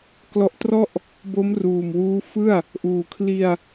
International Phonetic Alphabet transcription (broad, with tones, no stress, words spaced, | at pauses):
klɔ˦˥ʔtrɔ˥˩ʔ | bo˦˥mruː˨˩m wuː˦˥fɯ˥˩a̯ | ʔuː˨˩kʰli˧a̯